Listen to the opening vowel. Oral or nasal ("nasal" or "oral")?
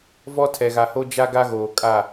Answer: oral